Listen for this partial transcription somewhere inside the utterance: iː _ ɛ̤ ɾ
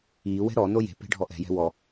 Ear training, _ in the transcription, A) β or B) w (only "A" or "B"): B